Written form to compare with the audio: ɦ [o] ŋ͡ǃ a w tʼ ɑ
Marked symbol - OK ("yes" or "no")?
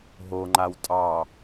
yes